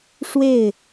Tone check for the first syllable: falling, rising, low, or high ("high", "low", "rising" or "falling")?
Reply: falling